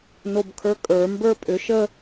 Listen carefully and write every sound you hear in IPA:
nobkʰə˞kʼə˞ mbə˞pʼʏʃ ə

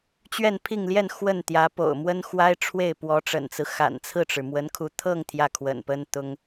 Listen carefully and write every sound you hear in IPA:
t͡ɕɥɛ˥˧npʰi˥˧ŋljɛ˥˧n xwə˥˩n t̪jä˧˥po̰˨˩ʊ̯ mwə˥n xwa˥ɪ̯ʈ͡ʂʰwe˥˩ɪ̯ pwɔ˧˥ʈ͡ʂə̰˨˩nt͡sɹ̩˦xa̰˨˩n t͡sʰɹ̩˥˩ʈ͡ʂɻ̩˩mwə˧˥nkʰu˧˥ t̪ʰɤ˥˧ŋ t̪ʰjä˥˩kʰwə̰˨˩npə˥n t̪ʊ˥ŋ

